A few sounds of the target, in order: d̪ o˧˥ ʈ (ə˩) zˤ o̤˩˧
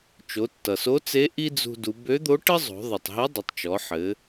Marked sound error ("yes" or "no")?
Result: yes